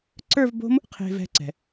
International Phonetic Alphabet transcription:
ǀə˞˥˧vbo̤˦˥m | qʰe̤˧vɛ̤˧ǀɛ̤˩

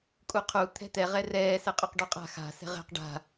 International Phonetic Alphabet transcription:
kʼuqʰu t̪ʰɛ̤t̪ɛ ʁɛrɛː sɛqʼøqɖuqʼa̤ xa̤ sɛ̤ʁɛ̤q ɖa̤

